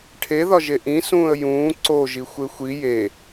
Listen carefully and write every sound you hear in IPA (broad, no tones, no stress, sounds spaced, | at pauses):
ʈʰ e ð ɒ ʒ e ʔ ĩ s ũː ə̯ j ũː ǀ o ʒ i xʷ e xʷ i j e